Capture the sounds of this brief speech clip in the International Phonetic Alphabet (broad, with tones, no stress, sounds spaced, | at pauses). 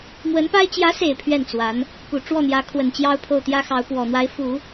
m w ə˧˥ n p a˥ ɪ̯ t͡ɕ j ä˧˥ s e˨˩ ɪ̯ pʰ ɥ ɛ˥˩ n t͡s w a˧˥ n | p u˨˩ ʈ͡ʂ w ɔ˥˩ n̪ j ä˧˥ kʰ w ə˨˩ n t͡ɕ j ɑ˥ ʊ̯ pʰ o˥˩ ʊ̯ t̪ j ä˥ x ɑ˧˥ ʊ̯ p w ɔ˨˩ n̪ w a˧˥ ɪ̯ f u˨˩˦